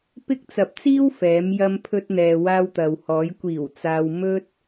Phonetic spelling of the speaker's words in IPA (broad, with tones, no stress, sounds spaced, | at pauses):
p ɪ˥ k̚ t͡s ɐ˧ p̚ t͡s iː˥ w f ɛː˨˧ m j ɐ˧ m pʰ ɵ˧ t̚ n̪ ɛː˨ w aː˧ w t̪ ɐ˨ w h ɔː˨˧ j kʷ iː˨˩ w t͡s aː˨ w m ɵ˧ t̚